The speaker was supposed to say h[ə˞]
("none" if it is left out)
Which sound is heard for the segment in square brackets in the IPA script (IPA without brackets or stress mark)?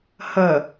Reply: ɐ